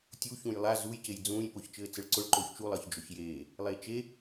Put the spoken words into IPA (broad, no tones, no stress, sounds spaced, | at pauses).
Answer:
tʲ u ç ũ j lˠ a z u j c e j d͡z ũː j p ʊː ç t͡ʃ ɘː t͡s ɘ ɭ ǀ ʊ ɭ ǃ oː ç t͡ʃ u lˠ ʌː ç d͡ʒ ʊ ç j eː | lˠ eː t͡ʃ e